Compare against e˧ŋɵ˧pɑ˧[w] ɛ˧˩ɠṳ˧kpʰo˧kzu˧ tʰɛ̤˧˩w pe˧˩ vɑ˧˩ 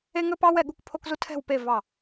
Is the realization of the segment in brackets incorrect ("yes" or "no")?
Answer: no